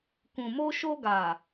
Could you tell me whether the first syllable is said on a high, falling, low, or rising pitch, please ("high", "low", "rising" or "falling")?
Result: low